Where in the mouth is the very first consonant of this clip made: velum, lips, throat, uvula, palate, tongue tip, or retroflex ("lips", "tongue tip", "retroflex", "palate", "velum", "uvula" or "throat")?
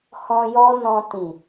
throat